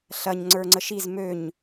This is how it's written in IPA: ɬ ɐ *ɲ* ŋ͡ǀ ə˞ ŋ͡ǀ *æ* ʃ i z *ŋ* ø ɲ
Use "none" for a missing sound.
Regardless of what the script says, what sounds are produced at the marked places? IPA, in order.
ɲ, ə, m

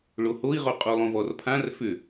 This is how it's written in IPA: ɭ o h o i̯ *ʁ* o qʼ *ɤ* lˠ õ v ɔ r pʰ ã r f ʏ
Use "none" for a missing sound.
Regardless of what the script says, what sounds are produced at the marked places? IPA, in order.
ʁ, o

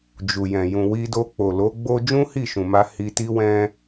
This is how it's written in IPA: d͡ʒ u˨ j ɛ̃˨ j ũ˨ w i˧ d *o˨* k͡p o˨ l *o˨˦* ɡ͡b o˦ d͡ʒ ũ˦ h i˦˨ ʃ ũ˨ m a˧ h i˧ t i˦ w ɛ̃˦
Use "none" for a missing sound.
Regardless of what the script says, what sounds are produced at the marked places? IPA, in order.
o˧, o˨˦

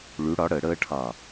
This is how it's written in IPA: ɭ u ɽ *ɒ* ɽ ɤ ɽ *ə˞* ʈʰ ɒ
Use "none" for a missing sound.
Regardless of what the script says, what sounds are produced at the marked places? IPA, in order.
ɒ, ɤ

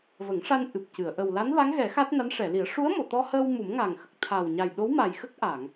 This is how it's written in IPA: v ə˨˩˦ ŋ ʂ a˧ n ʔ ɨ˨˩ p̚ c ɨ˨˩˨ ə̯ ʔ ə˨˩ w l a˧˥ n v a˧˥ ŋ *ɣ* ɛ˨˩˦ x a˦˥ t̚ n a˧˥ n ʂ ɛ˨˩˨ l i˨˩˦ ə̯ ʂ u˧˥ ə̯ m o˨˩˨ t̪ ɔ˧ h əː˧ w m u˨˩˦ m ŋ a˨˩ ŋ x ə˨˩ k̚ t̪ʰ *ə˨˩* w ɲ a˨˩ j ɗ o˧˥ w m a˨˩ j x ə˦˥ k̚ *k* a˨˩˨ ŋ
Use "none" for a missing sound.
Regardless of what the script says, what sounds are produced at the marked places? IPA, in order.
ɣ, a˨˩, ʔ

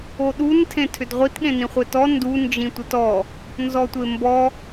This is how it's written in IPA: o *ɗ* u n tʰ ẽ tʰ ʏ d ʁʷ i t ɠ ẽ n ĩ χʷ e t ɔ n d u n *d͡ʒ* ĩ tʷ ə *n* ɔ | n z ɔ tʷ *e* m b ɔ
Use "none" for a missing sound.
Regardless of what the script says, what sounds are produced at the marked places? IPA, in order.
ɗ, d͡ʒ, t, e

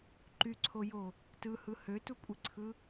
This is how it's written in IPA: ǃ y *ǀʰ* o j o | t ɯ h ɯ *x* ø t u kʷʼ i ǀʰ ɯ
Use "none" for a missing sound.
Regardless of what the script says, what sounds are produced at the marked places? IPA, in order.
ǀʰ, h

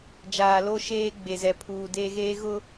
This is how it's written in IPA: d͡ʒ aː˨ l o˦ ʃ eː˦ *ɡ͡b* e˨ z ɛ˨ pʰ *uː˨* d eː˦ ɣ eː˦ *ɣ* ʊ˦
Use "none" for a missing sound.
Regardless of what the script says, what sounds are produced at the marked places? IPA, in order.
ɡ͡b, uː˨, ɣ

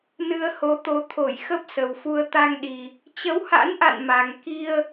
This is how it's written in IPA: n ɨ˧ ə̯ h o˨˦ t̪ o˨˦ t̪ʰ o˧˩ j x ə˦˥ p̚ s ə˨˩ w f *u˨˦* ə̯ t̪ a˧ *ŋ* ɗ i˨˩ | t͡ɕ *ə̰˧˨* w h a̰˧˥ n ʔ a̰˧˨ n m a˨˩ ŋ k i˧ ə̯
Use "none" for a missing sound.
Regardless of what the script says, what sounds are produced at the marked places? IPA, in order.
u˧, ŋ, ə˨˦

